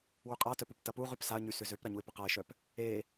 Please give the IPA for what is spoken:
w y qʼ a t œ p u p t ɐ p u ʁ y p s a ə̯ ɲ y s ʏ z ø p ɾ ɐ ɲ u ɪ̯ p ʏ q a ɪ̯ ʃ œ p | e

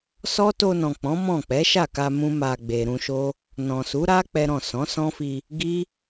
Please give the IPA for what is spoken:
s ɔ˦ t o˧ n ɔ̃˨ k͡p ɔ̃˨˦ m ɔ̃˦˨ k͡p ɛ˨˦ ʃ a˦˨ k a˧ m ũ˦ m a˧ ɡ͡b e˨ ɾ ũ˧ ʃ o˦ | n ɔ̃˨ s u˨˦ ɾ a˦ k͡p ɛ˦ ɾ ɔ̃˦˨ s ɔ̃˨˦ s ɔ̃˦ f i˧ | ɡ i˦

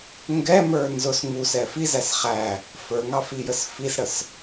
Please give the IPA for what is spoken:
ŋ ɡ ɛ m ə˞ n z ʊ s ŋ u s ɛ f i z æ s χ æ | f ə˞ ŋ ɑ f i j ə s f i s ɽ ə s

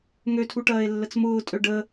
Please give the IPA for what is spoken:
ŋ ø tʰ u ʈ ɐː e̯ lː ə t͡s m ʊː tʼ ø ɖ ə

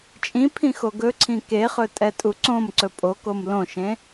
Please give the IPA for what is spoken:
t͡ʃʼ ĩ pʰ ĩ x o ɡ ɵ ǀʰ ĩ k e χ ɵ tʼ ɛ tʼ u ǀ õ m ǀ ɵ pʼ o k o m l õ ʃ ẽ

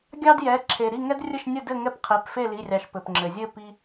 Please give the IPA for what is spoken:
ɡʲ ɑ˥ d j ɛ˩˧˩ ǁʰ e˩ ɾ i˥˨ ŋ ɛ˥ d rʲ ə˥˨ ʃ nʲ ə˥˨ d ɘ˥˨ ŋ ɛ˥˨ p qʰ e˩˧˩ p f e˥˨ l i˩˧˩ rʲ ɑ˩ ʃ p ɘ˩ p ŋ͡ǁ ɘ˩ zʲ ɘ˥˨ p i˥

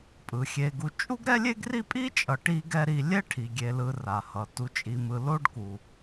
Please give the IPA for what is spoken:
pʼ ɯ˩ xʲ e˨ ɡ u˨ t͡ʃʼ u˥ ɡ ɾ ɛ˥ lʲ e˥ ɡ r i˥ pʼ i˥ t͡ʃʼ ʌ˨ ʈ i˥ ɡ ɛ˥ ɾ i˦ lʲ ɛ˥ ʈʰ i˩ ɡʲ e˨ l ɯ˨ r a˩ h ʌ˩ t u˨ t͡ʃʼ i˨ m ɯ˨ l o˦ ɖ k u˩

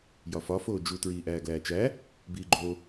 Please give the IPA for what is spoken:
j ɒ f ɒ f oː d͡ʒ u t ɹ iː ʔ æː ɡ l æː t͡ʃ æ | b iː ɡ͡ǃ o

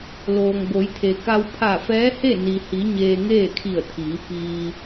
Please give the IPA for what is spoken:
l oː˩ ŋ b o˩˧ j t̪ʰ e˩ k a˧ w pʰ a˧˩ f ɛː˧˥ h e˥˨ n i˩ h i˩˧ ɲ eː˧ ŋ eː˥˨ kʰ i˧˩ ə̯ t̪ʰ iː˩˧ p iː˧

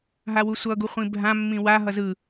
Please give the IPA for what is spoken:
ɦ a w u sʷ ʌ ɡ u χʷ ĩ bʱ ã mː ĩ w a ɦ ʌ z ɯ

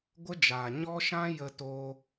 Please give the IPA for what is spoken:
ɡʷ ə˦ d͡ʒ aː˨ ɲ ɔ˦ ʃ ã˦ j ə˧ t oː˧

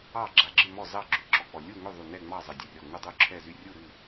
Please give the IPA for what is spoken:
ɑ˥˨ ɡ͡ǁ a˧˩ ɡ͡ǁ ɨ˥˨ m ɔ˥˨ z ɑ˥˨ ɡ͡ǁ y˧˩ ǁ ɔ˧˩ k͡p ɔ˧˩ lʲ u˥˨ ŋ ʏ˥˨ ðˤ u˧˩ n ɛ˥˨ ŋ͡m ɑ˥˨ zˤ ə˧˩ dʲ ə˧˩ rʲ ɔ˧˩ ŋ u˥˨ dˤ u˥˨ ǁʰ ɛ˥˨ z y˥˨ rʲ u˥˨ ɾ ɨ˥˨

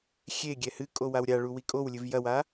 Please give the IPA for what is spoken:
xʲ e ɡʲ ɛ h ɨ kʼ o w a w ɾʲ a ɭ u w i kʼ o w lʲ ɨ v j ɐ w a

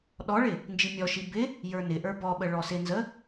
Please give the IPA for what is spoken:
ɗ ɔ ɭ ɪ | n d͡ʒ i mʲ ɔ ʃ i b ɪ | j ə˞ n ɪ ʔ ə˞ b ɔ ɓ ə ɭ ɔ s ɪ n z ə

